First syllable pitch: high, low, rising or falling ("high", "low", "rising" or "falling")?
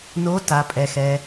rising